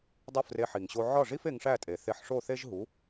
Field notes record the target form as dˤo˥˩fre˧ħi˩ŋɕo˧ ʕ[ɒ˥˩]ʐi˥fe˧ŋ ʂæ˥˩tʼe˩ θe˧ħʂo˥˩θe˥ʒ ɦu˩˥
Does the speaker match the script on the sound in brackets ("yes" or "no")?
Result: yes